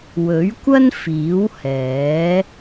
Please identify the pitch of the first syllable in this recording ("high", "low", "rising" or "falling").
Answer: rising